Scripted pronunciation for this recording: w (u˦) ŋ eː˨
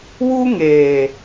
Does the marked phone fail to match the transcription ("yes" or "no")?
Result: no